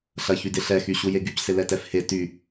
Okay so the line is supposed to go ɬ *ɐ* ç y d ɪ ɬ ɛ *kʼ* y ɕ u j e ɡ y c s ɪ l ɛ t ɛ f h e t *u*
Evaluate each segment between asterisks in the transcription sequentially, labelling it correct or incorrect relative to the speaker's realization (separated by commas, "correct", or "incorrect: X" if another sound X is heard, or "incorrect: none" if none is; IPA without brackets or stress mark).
correct, incorrect: x, incorrect: y